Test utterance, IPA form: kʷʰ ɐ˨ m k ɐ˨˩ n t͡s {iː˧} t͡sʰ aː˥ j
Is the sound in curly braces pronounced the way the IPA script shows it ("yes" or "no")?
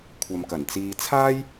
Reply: yes